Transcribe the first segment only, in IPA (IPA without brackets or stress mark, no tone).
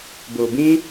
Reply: b